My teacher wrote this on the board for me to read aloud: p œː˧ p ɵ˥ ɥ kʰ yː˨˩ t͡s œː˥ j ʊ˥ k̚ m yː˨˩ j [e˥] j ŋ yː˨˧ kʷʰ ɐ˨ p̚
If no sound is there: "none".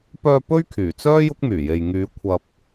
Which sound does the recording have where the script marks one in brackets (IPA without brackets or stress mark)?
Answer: e˨